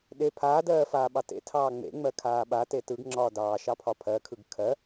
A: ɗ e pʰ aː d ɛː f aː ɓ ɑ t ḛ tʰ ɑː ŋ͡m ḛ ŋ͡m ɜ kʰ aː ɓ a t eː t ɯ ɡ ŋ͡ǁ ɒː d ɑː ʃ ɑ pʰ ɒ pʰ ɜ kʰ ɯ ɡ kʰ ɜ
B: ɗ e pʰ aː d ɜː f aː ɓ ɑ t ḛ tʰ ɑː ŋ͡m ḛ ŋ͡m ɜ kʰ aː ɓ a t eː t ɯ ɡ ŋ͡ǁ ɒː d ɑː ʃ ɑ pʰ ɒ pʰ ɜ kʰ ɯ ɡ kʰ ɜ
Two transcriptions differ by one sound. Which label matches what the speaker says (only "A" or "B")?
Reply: B